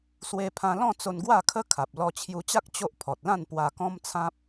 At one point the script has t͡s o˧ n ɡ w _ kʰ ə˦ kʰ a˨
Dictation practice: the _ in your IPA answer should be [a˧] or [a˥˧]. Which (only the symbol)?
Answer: a˥˧